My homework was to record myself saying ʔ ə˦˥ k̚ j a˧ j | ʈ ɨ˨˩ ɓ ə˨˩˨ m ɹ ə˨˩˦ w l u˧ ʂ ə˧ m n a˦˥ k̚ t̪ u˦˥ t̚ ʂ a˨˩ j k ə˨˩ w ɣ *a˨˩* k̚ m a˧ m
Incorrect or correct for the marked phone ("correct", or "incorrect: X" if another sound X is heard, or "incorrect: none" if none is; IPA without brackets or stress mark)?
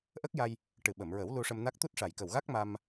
incorrect: a˦˥